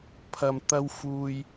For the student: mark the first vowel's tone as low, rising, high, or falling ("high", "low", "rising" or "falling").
low